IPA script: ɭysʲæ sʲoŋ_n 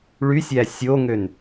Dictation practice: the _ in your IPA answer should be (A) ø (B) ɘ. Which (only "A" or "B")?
A